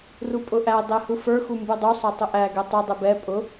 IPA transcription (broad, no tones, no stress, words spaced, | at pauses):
rupʼʊʔæ dˤɛhufə˞ xumbudˤu sˤɛtˤʊʔæ ɡɛtˤʊ dˤɛbɛ pʼʊ